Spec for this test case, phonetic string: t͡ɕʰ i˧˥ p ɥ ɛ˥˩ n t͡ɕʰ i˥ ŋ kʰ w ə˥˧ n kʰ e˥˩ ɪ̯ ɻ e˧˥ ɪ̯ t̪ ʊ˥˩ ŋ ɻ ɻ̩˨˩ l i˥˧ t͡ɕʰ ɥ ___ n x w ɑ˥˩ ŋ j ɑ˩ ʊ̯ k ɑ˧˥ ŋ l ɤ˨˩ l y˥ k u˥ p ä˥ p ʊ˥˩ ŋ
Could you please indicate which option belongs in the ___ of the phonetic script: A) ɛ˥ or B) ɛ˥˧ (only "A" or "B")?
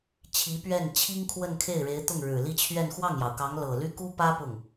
B